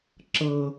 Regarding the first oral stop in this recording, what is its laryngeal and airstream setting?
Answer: click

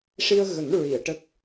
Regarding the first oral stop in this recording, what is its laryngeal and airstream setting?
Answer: plain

